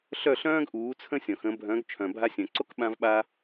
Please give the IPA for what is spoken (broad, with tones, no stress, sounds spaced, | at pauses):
ɬ œ˥˩ ɬ œ̃ː˥ ɡ ʔ uː˩˥ t͡sʰ ə̃˥ sʲ ɔ̃˩ x ə̃˩˥ bʱ œ̃˩˥ ɡ t͡ʃʰ œ̃˩ bʱ a˧ sʲ œ̃˩ ǀ o˥ k ɓ ã˧ v ɓ a˧